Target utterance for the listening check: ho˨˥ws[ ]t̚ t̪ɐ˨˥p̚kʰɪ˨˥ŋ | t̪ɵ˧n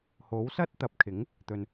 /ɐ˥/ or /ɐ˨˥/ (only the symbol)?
ɐ˥